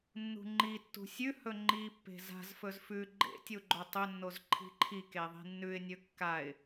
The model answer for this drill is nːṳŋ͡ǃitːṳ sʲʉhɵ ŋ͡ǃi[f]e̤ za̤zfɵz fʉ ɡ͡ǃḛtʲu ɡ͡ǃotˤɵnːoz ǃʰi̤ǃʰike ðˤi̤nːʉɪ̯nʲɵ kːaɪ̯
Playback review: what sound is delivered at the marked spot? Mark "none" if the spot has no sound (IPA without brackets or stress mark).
pː